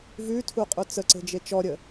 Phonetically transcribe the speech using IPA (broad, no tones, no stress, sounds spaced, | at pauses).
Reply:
v ʉ tʰ u qʼ u t͡s ə ǀ e̤ d͡ʒ e t͡ʃ ɔ ɾʲ ə